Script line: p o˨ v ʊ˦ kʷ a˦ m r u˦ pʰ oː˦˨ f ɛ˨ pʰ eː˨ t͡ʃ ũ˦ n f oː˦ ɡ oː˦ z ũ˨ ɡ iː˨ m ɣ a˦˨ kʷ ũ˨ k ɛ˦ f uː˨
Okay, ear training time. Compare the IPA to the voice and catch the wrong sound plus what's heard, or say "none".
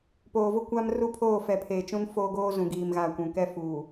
o˨ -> oː˨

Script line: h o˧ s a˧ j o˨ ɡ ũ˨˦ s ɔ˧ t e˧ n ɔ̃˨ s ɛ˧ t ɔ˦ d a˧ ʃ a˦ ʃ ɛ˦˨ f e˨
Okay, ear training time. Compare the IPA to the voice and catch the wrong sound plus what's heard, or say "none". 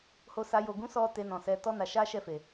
d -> n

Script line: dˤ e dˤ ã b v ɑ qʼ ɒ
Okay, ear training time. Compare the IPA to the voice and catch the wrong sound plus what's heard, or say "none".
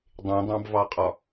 e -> ẽ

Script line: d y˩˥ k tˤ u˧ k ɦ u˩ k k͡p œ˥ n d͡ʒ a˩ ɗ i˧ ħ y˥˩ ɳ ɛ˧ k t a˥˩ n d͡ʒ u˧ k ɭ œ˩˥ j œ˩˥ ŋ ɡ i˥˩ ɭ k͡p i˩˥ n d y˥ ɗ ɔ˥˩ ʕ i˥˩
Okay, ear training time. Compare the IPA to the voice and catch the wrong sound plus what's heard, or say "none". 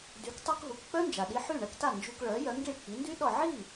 none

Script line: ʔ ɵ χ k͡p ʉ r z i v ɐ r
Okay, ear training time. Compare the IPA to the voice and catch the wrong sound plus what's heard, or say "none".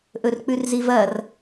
χ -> r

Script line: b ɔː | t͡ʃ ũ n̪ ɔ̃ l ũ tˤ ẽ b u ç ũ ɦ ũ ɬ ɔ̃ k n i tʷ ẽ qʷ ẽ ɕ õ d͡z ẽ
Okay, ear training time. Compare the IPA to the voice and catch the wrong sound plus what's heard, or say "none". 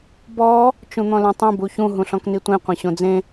none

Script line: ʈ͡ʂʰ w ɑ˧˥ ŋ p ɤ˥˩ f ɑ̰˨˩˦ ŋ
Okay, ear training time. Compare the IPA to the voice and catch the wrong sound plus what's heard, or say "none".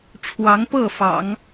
none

